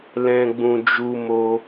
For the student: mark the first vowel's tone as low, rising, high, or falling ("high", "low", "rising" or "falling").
low